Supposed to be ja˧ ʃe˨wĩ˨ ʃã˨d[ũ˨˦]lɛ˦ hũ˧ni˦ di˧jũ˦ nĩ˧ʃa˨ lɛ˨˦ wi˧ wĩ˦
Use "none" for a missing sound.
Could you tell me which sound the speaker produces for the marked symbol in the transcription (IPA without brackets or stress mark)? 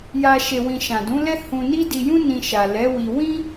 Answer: ũ˨˦